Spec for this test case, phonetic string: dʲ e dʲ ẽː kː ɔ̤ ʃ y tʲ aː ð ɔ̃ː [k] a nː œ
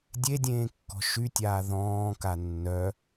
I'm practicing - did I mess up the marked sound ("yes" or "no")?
no